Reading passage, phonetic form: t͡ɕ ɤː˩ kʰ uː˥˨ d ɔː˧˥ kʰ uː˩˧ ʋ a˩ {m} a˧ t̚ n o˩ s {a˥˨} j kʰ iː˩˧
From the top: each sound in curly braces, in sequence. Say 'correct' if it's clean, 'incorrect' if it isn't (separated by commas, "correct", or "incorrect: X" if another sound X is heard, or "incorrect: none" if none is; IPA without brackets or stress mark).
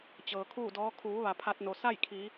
incorrect: pʰ, correct